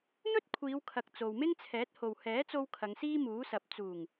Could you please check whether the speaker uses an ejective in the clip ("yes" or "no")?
no